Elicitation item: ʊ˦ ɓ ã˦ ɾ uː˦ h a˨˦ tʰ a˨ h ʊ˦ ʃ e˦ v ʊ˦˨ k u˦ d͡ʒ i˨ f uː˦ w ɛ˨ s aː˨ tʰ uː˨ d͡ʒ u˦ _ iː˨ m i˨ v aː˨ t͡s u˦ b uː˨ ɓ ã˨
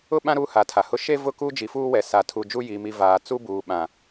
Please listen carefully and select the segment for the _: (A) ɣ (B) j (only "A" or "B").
B